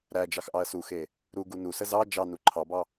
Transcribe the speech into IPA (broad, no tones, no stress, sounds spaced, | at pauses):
ɾ æ d͡ʒ ɑ x ʔ ɑ ɐ̯ s u x e | ɾ u ɡ u n u s ə z ɑ d͡ʒ ɑ n u ǃʰ ɑ b ɑ